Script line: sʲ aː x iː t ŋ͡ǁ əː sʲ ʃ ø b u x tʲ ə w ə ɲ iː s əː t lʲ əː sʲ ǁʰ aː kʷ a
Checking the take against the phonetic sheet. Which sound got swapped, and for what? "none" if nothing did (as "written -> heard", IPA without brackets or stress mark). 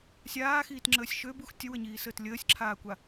none